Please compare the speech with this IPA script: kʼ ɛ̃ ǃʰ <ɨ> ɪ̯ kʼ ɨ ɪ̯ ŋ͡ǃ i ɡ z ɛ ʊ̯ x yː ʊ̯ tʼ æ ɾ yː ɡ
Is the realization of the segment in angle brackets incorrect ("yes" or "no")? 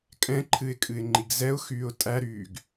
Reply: no